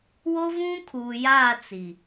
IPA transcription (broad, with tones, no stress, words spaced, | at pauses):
wo˦vũ˦kʰuː˨ jaː˦˨ t͡si˨